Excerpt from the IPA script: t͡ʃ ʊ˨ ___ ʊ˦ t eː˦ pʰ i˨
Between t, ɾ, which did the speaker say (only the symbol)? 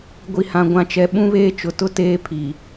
t